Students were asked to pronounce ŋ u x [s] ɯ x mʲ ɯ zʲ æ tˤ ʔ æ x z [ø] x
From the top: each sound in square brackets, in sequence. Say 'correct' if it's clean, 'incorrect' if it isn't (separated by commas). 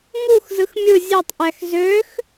incorrect, correct